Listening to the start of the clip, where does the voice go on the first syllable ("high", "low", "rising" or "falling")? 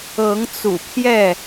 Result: rising